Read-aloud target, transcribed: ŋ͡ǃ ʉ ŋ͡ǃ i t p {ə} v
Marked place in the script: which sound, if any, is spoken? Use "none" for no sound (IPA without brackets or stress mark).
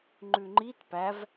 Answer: æ